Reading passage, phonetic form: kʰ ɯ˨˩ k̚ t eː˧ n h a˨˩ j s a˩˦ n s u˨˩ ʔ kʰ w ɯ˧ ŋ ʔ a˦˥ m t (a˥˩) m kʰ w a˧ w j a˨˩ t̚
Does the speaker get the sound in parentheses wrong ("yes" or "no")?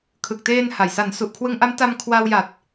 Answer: yes